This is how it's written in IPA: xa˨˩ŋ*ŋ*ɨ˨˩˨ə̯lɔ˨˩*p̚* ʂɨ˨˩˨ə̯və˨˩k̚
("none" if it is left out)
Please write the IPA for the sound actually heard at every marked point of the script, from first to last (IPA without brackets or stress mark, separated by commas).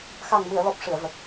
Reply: m, p̚